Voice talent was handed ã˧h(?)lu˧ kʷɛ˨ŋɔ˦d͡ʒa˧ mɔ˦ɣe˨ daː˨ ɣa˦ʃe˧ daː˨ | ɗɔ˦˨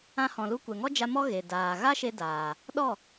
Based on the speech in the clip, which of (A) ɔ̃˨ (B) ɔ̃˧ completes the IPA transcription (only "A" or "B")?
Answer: A